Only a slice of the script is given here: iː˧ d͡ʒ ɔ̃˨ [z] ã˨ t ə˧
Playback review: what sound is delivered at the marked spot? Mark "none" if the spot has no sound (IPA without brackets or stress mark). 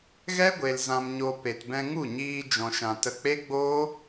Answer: ʃ